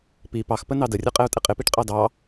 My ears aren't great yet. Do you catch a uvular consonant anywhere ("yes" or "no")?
yes